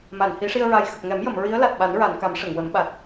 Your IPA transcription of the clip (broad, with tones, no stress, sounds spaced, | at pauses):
m a˨˩˨ n h i˨˩˦ ʂ i˧ ə̯ ɹ a˨˩ j x ə˨˩ k̚ ŋ ɛ˨˩˦ m j ə˨˩˨ m ɹ i˧˥ ə̯ l a˨˩ t̚ ɓ a˨˩˦ n ɹ a˨˩˨ n k a˨˩˦ m ʂ ə˨˩˨ ŋ w ə˨˩˦ m ɓ a˨˩ t̚